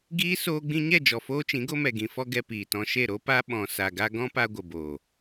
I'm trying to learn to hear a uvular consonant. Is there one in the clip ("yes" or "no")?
no